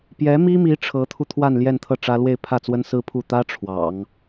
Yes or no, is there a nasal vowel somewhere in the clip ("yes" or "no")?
no